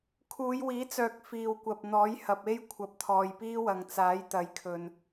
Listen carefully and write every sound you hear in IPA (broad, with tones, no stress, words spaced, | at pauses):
kʰuː˨˧jwiː˨˥t͡sœː˨k̚ fiː˨wkʷɐ˨p̚n̪ɔː˨˥j hɐ˨p̚e˥j kʷʰɐ˨˥p̚t̪ʰɔː˨jpiː˥wɐ˨ŋ t͡saː˨˥jt̪ɐ˨˧jkʰɵ˧n